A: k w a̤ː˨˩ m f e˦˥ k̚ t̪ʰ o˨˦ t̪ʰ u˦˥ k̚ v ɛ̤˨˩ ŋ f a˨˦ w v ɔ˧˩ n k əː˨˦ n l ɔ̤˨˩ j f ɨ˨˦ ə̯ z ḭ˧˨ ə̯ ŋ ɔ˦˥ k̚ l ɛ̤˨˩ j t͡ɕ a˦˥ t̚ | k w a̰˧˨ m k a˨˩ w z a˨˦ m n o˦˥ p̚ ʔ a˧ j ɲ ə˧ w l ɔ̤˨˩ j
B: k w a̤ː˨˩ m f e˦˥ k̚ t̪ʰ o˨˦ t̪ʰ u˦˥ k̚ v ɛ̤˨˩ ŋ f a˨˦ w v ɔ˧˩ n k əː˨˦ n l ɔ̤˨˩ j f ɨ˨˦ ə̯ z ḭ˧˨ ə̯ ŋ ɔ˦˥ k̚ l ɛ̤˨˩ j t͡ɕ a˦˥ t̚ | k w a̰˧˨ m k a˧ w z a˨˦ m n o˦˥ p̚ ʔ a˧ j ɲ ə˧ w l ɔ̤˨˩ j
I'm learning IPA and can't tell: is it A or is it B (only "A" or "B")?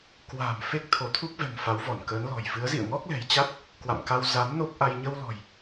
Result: B